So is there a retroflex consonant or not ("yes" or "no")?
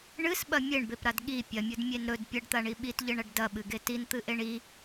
yes